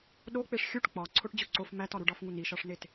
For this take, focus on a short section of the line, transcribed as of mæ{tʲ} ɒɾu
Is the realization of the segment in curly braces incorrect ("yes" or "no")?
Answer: yes